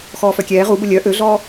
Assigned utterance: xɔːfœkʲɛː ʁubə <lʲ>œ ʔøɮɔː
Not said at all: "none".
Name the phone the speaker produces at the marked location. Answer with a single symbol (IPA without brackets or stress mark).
lʲ